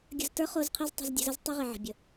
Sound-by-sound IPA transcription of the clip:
ɡʲ ə̤˧ z t ə˞˦ χ o˧ z qʰ i˧ z tˤ ə̤˧ z dʲ e̤˧ z ə˨˦ z tˤ i˦ ʁ i˨ ʕ ə̤˨ bʲ ə˨

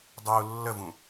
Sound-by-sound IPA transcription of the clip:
dˤ u lː ə v ũ

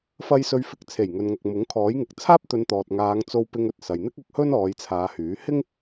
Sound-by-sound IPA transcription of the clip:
f ɐ˧ j s ɵ˨˧ ɥ f ɪ˨˥ k̚ t͡sʰ e˨˩ j ŋ ɵ˨ n ŋ ɐ˨ k̚ m ʊ˨˥ ŋ kʰ ɔː˨˥ j ŋ ɪ˨ k̚ t͡sʰ aː˥ p̚ t̪ ɵ˨˧ n t̪ ɔː˨ t̚ ŋ aː˨˧ ŋ t͡s o˧ w p ɪ˧ ŋ ɵ˨ t̚ s ɐ˨ j n̪ ɪ˥ k̚ ʊ˧ k̚ h ɵ˥ n ɔː˨˧ j t͡sʰ aː˨˧ h yː˨˥ h ɪ˥ ŋ

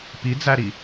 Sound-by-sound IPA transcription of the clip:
p i d͡z æ ɾ i

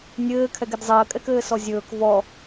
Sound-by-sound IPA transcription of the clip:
nʲ ɘː kʰ ɛ ɡ e d zˤ əː kʼ ɛ k ɘː s ɔ zʲ ɵː k v ɔ

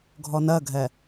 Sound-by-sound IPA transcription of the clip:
ɡʱ ɔ n ɜ ɡʱ ɛ

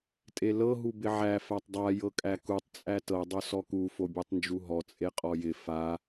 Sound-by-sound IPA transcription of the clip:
tʼ e l ɤ ɦ u b ɪ ʕ æ f æ tˤ dˤ a j ɤ kʼ æ k u tˤ t͡sʼ æ t ɤ dˤ o s ɔ k u f o bʲ u tˤ n d͡ʒ u ɦ ɔ t͡sʼ e qʼ ɔ j ɪ f a

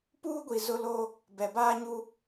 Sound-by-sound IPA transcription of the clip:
p uː˦ ɡʷ i˨ z ʊ˦ l o˦ | b ɛ˨ b aː˦ ɲ u˦

